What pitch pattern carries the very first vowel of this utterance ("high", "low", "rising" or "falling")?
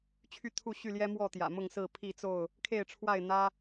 falling